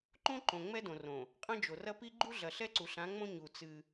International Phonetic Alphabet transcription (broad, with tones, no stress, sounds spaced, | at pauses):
ǃ õ˦ ǃ õ˨ ŋ͡m ɛ˦ d õ˨ r õ˨ | qʼ ɐ̃˦ d͡ʒ o˨ r ɐ˦ p i˦ ɡ͡ǃ u˦ ɮ ɐ˨ ɬ ɛ˦ ǀ u˨ ɬ ã˨˦ ŋ͡m õ˦ ɲ u˨ t͡s ɨ˦